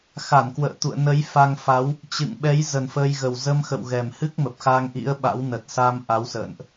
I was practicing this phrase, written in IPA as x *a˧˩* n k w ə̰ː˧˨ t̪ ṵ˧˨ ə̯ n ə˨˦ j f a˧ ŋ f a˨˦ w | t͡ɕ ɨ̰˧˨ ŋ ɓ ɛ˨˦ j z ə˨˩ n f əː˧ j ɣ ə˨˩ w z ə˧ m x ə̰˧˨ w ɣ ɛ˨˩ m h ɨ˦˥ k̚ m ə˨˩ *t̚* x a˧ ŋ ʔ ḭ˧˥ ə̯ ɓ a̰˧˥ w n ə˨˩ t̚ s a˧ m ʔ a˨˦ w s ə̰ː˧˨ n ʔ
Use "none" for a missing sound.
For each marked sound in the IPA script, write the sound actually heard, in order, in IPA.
a˧˩, p̚

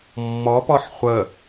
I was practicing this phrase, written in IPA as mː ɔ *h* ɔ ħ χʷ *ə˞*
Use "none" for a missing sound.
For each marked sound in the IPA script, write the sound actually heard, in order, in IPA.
p, ə

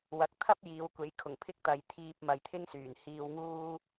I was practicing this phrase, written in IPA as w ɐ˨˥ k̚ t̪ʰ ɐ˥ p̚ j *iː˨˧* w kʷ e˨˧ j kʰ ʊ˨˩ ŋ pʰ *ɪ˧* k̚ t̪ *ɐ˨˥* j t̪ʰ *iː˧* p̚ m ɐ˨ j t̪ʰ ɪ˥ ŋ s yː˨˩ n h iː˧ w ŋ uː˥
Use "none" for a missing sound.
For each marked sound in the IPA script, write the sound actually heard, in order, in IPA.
iː˨˧, ɪ˥, ɐ˧, iː˧

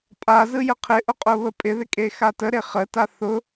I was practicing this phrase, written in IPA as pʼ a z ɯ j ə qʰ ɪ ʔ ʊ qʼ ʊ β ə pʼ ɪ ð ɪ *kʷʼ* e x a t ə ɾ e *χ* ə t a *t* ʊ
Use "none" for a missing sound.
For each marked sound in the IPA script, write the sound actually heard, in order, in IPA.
kʼ, χ, θ

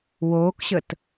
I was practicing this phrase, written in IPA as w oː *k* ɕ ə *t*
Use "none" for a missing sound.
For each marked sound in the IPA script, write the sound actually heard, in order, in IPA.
k, t

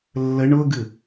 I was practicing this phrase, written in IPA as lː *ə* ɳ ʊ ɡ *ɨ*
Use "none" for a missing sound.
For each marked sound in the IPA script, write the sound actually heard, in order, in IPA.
ə, ɨ

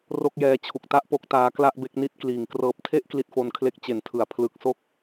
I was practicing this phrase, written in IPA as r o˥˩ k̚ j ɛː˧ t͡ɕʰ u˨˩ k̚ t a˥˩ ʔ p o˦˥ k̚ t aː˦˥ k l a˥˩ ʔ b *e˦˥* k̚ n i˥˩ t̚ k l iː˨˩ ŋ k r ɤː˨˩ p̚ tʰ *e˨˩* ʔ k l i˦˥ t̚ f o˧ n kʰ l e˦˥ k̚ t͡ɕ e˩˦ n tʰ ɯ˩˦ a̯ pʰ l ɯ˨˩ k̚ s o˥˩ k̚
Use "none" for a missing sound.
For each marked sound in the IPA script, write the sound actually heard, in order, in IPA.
e˦˥, e˥˩

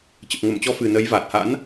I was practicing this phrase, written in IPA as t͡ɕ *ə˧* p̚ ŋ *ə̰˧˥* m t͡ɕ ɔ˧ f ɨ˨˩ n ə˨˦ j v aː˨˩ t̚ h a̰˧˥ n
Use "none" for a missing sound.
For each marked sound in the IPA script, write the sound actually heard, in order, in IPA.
ə˨˩, ə˧˩

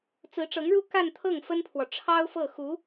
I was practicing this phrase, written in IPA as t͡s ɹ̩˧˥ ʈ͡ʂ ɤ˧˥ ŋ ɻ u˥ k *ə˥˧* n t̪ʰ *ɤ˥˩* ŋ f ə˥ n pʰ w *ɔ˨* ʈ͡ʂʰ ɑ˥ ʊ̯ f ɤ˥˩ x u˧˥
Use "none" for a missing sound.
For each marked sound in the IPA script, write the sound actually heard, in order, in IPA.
a˥˧, ɤ˥˩, ɔ˨

